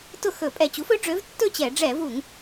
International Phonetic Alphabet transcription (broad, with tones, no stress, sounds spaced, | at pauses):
t ʊ˥˩ x ɵ˧˩˧ pʼ ɛ˧˩ t͡ɕ u˩˥ f ɵ˩˥ ɖ͡ʐ ø˩˥ v tː ɵ˥˩ t͡ɕ ɛ˧˩˧ ɖ͡ʐ ɛ˧˩˧ v u˧˩˧ ŋ